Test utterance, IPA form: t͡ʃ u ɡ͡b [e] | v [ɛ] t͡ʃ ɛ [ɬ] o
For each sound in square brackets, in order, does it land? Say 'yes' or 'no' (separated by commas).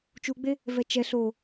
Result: yes, yes, yes